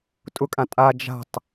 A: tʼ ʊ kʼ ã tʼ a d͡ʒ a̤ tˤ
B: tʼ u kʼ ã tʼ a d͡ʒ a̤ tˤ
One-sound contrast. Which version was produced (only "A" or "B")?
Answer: A